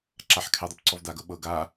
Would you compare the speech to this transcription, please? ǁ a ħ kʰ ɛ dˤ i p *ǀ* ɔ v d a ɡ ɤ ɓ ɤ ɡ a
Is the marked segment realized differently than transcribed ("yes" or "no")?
no